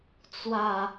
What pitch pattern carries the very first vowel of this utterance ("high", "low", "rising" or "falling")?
falling